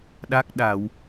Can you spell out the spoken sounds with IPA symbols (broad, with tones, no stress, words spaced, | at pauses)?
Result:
ɗa˦˥k̚ɗa˧˩˨w